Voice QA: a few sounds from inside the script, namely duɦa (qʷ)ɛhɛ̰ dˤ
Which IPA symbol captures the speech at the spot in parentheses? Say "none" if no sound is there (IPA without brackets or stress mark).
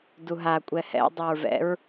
kʷʼ